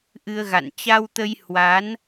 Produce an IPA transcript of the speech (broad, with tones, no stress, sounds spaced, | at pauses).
ʔ ɨ˧ ə̯ ɣ a̰˧˨ n t͡ɕ a˧ w t̪ ə˧ j h w a˨˦ n